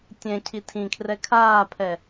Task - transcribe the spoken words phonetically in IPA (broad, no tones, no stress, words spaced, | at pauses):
tʲɛ̃cʰi tʰĩkʰrɛ kʰaːpʰɛ